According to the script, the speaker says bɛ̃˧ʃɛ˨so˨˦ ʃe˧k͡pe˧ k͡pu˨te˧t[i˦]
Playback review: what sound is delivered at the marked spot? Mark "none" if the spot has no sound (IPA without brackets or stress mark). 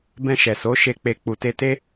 e˦